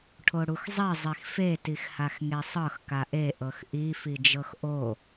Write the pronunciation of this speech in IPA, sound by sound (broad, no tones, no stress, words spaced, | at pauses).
ʈʰoɽuxzˤi zˤixfe tixhaxŋesˤɤx kaʔe ʔɤxʔi fid͡ʒɤxʔo